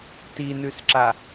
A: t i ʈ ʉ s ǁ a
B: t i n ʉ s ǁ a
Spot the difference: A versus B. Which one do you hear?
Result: B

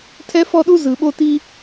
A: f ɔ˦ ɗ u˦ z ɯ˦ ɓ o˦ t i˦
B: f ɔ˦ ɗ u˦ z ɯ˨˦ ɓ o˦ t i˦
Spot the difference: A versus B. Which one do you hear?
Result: B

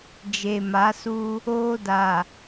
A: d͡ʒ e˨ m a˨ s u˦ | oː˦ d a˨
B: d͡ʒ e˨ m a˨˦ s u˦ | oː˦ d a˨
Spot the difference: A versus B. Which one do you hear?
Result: B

